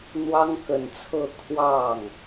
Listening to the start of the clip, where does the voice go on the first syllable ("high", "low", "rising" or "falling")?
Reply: high